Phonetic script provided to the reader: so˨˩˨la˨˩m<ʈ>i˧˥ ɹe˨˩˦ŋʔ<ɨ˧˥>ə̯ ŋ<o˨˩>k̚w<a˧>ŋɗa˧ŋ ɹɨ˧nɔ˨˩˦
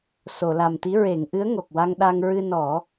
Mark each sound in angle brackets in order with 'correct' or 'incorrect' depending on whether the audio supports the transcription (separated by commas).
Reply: incorrect, correct, correct, correct